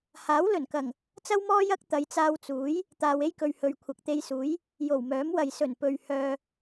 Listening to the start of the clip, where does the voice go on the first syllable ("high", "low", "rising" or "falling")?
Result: rising